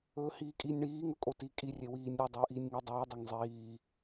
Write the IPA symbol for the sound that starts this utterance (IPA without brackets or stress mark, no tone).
ɵː